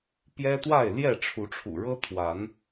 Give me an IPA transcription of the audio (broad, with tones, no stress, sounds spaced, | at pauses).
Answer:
p j ɛ˦ t̪ w a˥˨ ɪ̯ l j ɛ˥˨ ʈ͡ʂʰ u˨˦ ʈ͡ʂʰ ṵ˨˩ ɻ ɤ˦ t̪ʰ w a˨˦ n